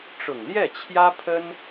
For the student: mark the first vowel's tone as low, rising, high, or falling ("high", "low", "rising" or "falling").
low